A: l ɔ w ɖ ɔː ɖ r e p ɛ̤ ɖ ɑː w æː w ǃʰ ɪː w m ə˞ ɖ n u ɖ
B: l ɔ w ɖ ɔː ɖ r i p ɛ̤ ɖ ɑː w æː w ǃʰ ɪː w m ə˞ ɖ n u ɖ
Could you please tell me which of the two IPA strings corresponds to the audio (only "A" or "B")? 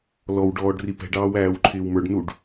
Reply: B